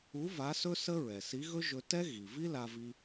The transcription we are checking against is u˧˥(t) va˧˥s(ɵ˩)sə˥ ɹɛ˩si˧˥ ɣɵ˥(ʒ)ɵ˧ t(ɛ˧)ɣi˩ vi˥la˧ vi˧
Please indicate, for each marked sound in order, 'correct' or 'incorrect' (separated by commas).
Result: incorrect, incorrect, correct, incorrect